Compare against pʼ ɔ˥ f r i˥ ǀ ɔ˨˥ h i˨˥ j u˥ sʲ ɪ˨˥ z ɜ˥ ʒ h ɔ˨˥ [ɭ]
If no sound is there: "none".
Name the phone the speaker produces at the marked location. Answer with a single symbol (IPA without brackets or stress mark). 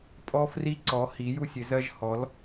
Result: l